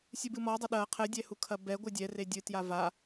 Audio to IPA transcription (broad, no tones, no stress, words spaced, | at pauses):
sʲɨbɨmɔdˤɐ ɗɐ qʰɘdʲɛ hukʰɐbɛɡʷɨ dʲɛre dʲɨtja va